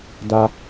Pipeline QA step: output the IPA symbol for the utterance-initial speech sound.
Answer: d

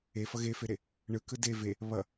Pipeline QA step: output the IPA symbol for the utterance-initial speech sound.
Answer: e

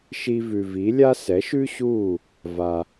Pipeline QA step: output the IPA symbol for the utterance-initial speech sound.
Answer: ʃ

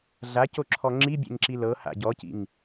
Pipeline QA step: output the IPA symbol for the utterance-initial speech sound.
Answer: ɮ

